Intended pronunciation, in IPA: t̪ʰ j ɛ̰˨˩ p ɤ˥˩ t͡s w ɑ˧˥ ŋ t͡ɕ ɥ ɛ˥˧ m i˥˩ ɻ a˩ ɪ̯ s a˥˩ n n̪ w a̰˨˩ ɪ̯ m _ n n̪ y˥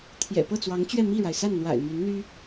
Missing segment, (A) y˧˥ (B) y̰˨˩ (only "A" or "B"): A